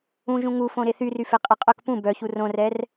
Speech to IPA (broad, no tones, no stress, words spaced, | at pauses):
ũʒũ ŋufõ ɾeθyryfe qʼɛqʼœk pũ bœçu rõrɛr